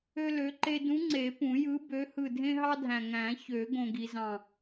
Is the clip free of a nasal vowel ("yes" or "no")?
no